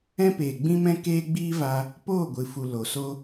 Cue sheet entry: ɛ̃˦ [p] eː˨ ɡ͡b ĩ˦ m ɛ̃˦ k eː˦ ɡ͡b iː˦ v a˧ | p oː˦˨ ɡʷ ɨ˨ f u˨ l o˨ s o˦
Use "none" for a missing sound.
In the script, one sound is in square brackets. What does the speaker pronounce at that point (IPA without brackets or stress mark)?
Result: p